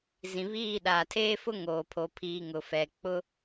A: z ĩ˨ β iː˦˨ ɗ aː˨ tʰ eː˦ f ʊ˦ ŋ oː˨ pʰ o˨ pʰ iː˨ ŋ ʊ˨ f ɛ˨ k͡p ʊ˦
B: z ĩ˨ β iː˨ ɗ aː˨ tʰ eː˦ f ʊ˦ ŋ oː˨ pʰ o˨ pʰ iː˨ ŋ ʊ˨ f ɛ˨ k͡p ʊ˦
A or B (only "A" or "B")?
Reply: A